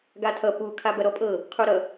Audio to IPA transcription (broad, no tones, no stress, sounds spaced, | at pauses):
ɡ a tʰ ʌ p u kʰ a b ɐ ɾ ɔ pʼ ɤ | qʰ u ɾ ʌ